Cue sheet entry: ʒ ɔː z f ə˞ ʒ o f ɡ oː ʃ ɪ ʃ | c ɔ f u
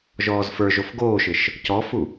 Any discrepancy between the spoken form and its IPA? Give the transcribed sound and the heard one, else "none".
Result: none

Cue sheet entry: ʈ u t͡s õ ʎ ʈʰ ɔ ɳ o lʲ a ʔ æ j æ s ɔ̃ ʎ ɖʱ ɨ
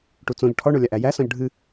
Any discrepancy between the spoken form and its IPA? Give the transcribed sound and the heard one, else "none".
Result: none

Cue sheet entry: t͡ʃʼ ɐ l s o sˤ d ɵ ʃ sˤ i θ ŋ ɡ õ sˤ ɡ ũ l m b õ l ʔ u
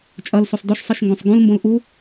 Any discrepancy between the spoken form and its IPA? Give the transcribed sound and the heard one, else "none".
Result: θ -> ʃ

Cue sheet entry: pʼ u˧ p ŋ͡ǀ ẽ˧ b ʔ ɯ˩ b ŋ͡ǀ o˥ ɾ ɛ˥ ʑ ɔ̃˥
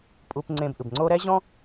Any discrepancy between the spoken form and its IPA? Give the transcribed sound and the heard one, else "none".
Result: none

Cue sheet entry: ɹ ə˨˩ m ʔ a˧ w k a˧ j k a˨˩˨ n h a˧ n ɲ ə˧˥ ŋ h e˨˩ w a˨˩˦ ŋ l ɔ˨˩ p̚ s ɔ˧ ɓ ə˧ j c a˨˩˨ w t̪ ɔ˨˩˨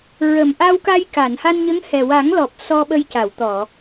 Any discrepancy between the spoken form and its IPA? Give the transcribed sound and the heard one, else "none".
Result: e˨˩ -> ɛ˨˩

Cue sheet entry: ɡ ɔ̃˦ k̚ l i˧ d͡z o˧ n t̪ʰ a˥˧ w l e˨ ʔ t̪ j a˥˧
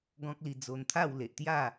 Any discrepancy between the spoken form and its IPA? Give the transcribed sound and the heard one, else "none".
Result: none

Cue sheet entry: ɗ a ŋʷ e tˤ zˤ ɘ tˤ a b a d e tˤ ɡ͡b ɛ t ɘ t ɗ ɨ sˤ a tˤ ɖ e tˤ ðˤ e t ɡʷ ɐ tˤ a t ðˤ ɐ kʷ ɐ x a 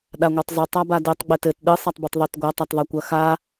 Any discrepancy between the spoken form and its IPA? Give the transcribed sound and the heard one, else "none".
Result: ɖ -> b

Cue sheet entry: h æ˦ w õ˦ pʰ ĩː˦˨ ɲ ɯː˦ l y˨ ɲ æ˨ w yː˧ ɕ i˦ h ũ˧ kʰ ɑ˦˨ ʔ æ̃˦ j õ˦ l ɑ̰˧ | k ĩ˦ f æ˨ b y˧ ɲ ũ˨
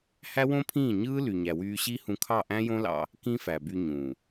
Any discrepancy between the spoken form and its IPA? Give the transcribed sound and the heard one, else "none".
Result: none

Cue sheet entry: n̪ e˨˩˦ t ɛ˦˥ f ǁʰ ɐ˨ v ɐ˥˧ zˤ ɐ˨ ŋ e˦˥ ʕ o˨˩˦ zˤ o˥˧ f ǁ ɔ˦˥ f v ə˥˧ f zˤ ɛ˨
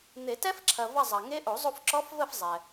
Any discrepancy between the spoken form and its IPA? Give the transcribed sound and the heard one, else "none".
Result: ʕ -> ʔ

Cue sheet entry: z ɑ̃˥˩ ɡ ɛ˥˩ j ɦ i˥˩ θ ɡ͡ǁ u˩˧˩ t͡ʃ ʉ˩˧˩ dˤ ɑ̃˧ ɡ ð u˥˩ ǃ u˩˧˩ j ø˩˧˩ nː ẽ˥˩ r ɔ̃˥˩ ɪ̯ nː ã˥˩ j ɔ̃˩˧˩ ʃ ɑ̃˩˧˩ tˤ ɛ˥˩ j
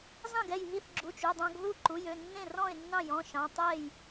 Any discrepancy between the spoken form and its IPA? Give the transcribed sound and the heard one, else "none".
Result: ã˥˩ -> ɑ̃˥˩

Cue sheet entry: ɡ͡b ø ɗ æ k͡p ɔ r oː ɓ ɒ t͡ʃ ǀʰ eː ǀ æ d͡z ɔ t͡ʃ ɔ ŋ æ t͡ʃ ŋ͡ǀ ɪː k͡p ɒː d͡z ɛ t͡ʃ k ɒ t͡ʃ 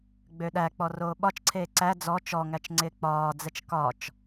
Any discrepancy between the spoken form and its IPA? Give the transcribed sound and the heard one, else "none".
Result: none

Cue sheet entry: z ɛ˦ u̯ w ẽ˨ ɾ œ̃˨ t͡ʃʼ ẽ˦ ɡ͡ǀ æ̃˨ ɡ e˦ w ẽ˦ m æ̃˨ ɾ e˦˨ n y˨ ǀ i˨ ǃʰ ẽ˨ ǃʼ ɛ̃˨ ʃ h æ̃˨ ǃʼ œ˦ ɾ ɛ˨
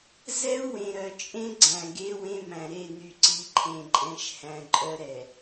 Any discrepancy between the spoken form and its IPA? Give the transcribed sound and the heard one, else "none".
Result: œ̃˨ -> œ˨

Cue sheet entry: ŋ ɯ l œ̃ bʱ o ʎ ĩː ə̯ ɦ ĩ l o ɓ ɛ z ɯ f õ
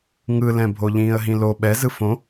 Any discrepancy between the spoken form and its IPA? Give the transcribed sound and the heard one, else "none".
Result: œ̃ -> ɛ̃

